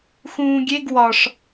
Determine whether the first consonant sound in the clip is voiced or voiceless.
voiceless